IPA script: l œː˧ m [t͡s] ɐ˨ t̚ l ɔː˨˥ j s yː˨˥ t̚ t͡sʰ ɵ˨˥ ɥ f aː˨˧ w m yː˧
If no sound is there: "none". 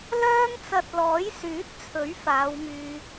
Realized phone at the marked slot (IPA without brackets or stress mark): t͡s